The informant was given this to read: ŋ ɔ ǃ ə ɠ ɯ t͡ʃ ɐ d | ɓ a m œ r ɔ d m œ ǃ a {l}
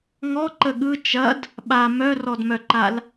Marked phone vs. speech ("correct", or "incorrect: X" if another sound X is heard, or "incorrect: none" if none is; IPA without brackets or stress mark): correct